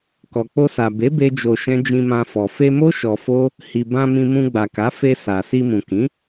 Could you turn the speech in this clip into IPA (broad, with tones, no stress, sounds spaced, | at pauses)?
k ɔ˨ k͡p o˧ s a˨ b e˨˦ b e˦ d͡ʒ o˧ ʃ ɛ̃˦ d͡ʒ ĩ˧ m ã˧ f ɔ˨ f e˧ m o˦ ʃ ɔ˧ f o˦ | h i˨ b ã˧ m ĩ˧ m ũ˧ ɡ͡b a˨ k a˨˦ f e˧ s a˨ s i˧ m ũ˨ k ĩ˨˦